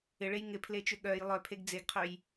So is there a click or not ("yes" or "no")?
no